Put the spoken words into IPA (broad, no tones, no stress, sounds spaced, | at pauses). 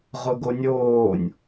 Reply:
ʁ ʊ ɡ o nʲ oː nʲ